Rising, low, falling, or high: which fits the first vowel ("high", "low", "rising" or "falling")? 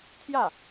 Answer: falling